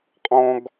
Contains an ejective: yes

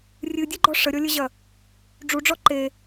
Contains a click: yes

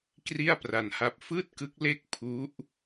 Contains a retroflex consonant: no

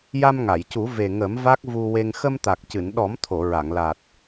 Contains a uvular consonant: no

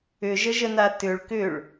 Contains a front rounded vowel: yes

